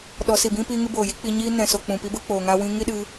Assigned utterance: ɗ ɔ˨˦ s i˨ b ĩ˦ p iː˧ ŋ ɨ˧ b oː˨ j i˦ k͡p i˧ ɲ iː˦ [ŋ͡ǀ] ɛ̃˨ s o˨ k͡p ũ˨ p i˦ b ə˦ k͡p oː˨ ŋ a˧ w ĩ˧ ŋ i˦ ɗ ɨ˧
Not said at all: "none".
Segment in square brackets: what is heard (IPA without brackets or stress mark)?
n